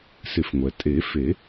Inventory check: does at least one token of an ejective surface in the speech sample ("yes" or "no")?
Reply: yes